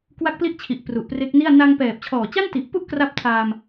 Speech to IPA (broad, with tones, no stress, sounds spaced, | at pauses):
k w a˦˥ k̚ p l i˦˥ ʔ t͡ɕʰ i˨˩ ʔ p r u˨˩ ʔ p r e˦˥ k̚ n i˥˩ a̯ n a˧ ŋ p ɛː˨˩ p̚ t͡ɕʰ ɔː˨˩ t͡ɕ a˥˩ n t i˨˩ ʔ p u˥˩ ʔ k r a˦˥ p̚ tʰ aː˧ m